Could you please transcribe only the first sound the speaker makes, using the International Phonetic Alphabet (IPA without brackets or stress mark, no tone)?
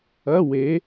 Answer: ɐ